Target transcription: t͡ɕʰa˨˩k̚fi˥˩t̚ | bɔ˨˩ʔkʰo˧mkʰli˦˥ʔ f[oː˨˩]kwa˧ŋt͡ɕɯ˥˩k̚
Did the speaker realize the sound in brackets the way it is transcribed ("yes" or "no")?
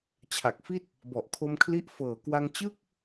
no